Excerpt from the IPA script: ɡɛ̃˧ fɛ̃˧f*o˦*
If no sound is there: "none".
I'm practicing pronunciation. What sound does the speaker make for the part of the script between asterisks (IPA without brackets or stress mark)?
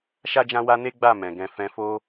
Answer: o˦